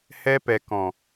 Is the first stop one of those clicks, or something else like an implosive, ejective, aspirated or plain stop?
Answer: plain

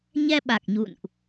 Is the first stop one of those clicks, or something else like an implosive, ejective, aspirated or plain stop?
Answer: implosive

